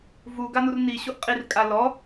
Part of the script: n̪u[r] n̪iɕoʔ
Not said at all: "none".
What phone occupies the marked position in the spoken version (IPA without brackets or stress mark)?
r